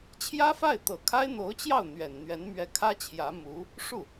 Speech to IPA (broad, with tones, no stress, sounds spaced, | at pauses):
t͡ɕʰ j ä˥ f a˥˩ ɪ̯ t̪ ɤ˨˩ kʰ a˥ ɪ̯ n̪ o˧˥ ʊ̯ t͡ɕ j ɑ˥˩ ʊ̯ n̪ ɥ ɛ˨˩ n n̪ ɥ ɛ˧˥ n m ɥ ɛ˧˥ kʰ ä˥ t͡ɕʰ j ä˧˥ m u˧˥ | ʂ u˥˩